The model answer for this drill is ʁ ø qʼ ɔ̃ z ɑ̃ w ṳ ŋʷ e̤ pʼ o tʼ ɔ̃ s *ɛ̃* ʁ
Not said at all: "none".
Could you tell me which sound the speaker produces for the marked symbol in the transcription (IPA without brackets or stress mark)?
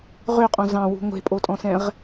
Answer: ɛ̃